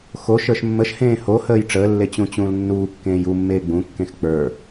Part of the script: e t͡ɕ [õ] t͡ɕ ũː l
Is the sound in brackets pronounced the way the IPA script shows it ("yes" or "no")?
no